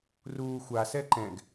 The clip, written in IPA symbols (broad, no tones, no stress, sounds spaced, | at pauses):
r uː xʷ a s ɛ ǃ ɛ̃ ɡ